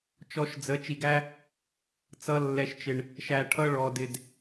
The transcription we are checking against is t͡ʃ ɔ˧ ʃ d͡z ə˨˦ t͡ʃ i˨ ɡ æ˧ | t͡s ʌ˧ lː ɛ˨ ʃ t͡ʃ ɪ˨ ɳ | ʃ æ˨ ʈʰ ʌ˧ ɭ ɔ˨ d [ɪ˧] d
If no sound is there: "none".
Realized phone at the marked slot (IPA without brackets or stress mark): ɪ˨